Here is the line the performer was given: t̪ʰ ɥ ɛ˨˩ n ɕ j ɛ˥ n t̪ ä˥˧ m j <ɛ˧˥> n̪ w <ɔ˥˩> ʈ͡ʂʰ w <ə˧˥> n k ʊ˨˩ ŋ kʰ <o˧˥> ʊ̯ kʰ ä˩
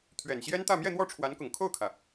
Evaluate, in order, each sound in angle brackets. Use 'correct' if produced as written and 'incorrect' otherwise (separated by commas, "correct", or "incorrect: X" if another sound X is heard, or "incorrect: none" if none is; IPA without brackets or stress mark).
incorrect: ɛ˥˧, correct, incorrect: a˧˥, incorrect: o˥˩